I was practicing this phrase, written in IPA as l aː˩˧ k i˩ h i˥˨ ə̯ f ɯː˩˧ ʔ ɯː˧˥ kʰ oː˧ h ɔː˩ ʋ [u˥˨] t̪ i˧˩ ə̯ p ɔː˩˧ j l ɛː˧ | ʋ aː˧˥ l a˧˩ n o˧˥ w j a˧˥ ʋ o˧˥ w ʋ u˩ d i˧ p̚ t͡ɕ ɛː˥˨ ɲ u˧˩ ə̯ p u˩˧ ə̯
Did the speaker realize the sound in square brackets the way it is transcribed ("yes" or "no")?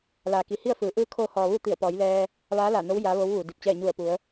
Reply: yes